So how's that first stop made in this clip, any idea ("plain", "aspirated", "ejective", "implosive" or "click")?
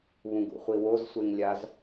plain